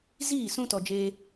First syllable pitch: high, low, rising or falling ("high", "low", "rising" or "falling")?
falling